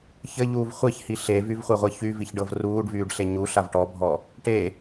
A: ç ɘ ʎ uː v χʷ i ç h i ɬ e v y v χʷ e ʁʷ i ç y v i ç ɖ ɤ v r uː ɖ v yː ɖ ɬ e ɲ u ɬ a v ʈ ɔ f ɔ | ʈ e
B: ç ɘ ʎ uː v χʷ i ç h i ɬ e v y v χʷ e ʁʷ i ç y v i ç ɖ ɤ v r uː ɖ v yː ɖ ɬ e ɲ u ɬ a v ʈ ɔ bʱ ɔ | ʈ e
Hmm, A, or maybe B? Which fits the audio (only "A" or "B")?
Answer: B